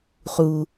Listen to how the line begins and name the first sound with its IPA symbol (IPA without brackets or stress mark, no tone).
χ